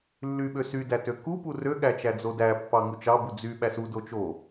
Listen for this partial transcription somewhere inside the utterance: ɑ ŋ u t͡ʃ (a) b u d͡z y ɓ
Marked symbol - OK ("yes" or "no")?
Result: no